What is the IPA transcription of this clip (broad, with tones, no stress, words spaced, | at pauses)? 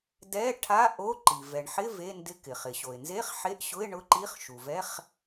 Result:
dɛ˧˥˧ʈʰa˧˥˧ ʔo˧˥˧ǃi˩ vɛ˩ɳħɪ˧˥˧ ve˧˥˧ndɪ˧˥˧k ɪ˩χɪ˩ɕo˩ɪ̯nze˧˥˧χ ħe˧˥˧ʔɕʊ˧˥˧ɪ̯ ɳʊ˧˥˧ǃi˧˥˧χ ʃu˩vɛ˧˥˧χ